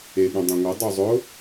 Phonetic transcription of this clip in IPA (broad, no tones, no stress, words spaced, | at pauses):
eɠũ dˤẽŋʷɯ dˤuzˤʊ